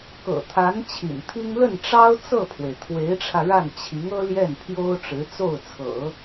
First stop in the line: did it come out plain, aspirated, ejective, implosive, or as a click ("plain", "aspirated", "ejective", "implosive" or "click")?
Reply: plain